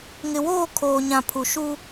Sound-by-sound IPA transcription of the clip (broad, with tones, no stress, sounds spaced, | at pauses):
ŋ ɪ˨ w oː˦˨ kʰ oː˨ ɲ ã˨ pʰ u˨ ʃ u˦